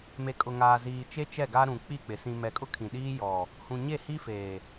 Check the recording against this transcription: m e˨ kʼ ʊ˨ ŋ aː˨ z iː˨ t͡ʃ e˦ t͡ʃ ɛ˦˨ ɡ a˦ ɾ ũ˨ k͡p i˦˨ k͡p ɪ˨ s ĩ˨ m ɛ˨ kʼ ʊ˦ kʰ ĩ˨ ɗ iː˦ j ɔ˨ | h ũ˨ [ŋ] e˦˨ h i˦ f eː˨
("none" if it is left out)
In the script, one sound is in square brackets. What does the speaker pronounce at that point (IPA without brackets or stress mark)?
ɲ